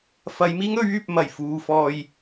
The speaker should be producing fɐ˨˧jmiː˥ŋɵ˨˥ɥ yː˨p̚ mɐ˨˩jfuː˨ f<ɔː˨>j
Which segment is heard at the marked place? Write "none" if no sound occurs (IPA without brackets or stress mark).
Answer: ɔː˨